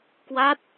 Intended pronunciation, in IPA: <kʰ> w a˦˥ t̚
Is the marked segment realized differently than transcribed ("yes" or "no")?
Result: yes